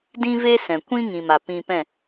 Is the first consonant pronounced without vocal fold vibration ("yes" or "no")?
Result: no